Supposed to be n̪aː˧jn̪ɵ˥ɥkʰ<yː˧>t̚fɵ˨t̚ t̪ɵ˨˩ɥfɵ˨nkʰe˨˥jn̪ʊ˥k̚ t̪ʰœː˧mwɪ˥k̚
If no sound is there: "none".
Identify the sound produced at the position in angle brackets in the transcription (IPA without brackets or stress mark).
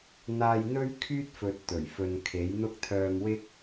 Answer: yː˥